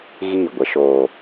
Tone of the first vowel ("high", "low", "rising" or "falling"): falling